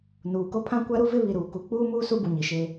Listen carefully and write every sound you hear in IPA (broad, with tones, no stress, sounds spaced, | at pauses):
n uː˨ k o˦ pʰ ã˦ kʷ a˦ ɾ u˦ v ɪ˦ β i˨ ɾ uː˨ k u˨˦ k͡p uː˦ m uː˦ s u˦ b u˨ ɲ i˨ ʃ e˦